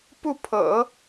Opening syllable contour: falling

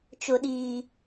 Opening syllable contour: high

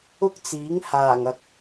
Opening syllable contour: high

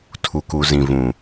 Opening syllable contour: low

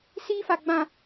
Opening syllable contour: high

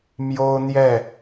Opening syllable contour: high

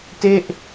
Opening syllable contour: falling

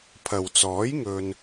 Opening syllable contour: low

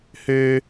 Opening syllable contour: high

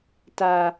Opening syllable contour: low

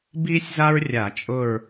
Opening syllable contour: high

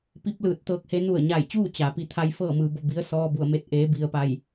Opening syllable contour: rising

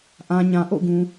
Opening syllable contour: low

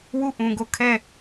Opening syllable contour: falling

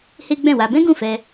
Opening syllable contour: high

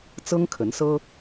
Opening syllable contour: high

